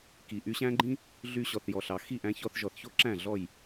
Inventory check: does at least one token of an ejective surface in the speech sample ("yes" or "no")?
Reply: no